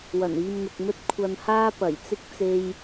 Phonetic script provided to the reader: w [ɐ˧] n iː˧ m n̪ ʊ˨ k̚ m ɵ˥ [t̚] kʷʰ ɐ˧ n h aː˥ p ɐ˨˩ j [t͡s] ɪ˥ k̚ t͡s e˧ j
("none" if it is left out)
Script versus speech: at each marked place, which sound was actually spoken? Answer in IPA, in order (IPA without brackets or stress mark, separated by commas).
ɐ˨˩, t̚, t͡s